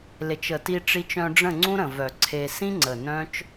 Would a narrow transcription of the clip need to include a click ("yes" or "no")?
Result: yes